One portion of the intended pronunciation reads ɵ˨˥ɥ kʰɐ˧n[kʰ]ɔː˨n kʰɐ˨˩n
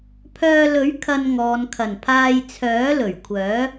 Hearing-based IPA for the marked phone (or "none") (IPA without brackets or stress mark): ŋ